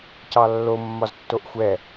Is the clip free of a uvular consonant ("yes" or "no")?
yes